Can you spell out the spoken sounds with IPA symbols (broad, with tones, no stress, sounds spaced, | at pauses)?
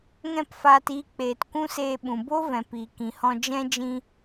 ŋ ɛ̃˦˨ p f aː˧ t iː˧ k͡p eː˨ t kʷ ũ˦ s eː˧ ɓ ũ˨ b o˦ v ɛ̃˨ p iː˨ k ĩ˨ h ɔ̃˧ d͡ʒ ɛ̃˦ d͡ʒ ĩ˦